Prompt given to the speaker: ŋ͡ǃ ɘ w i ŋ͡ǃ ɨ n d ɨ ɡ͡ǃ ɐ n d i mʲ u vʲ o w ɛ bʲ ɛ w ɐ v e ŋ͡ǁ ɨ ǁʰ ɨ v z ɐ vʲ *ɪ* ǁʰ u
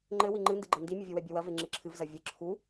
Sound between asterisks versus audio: incorrect: ɨ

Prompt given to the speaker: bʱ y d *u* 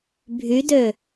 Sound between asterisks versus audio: incorrect: ø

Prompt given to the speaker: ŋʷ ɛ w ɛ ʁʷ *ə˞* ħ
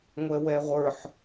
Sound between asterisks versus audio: correct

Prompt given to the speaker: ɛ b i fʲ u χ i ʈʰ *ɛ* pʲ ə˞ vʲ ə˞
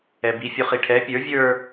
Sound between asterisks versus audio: correct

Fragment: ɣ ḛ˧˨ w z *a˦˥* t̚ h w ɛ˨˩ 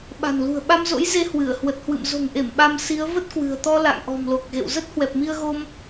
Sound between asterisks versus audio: incorrect: ə˦˥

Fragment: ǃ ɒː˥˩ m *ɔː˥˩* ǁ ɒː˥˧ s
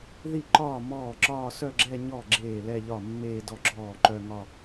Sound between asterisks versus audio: correct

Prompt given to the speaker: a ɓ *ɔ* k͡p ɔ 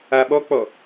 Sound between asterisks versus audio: correct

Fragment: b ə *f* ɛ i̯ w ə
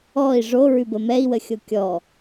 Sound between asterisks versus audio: incorrect: m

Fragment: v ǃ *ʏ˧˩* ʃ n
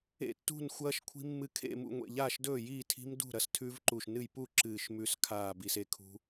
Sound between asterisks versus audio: incorrect: u˧˩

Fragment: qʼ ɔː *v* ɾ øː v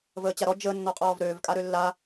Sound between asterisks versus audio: correct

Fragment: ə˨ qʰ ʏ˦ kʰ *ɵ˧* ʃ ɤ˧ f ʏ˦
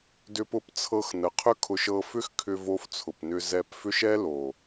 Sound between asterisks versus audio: incorrect: ʊ˧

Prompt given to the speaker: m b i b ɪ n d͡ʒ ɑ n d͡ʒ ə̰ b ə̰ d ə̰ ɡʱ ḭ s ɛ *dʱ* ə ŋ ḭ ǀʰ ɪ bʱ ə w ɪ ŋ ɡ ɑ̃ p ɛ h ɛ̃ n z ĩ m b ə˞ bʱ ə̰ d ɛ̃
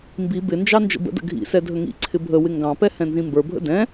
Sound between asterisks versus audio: correct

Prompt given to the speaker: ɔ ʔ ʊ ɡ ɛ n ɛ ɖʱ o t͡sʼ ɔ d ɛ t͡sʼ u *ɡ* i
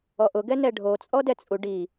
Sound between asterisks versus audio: incorrect: ɖ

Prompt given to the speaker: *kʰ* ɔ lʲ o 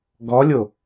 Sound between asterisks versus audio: incorrect: ɡ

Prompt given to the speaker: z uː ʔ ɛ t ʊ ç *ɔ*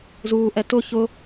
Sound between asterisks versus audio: incorrect: ʊ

